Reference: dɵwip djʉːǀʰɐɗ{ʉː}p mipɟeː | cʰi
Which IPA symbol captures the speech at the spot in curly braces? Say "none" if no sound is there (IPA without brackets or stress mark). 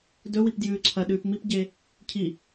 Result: ʉː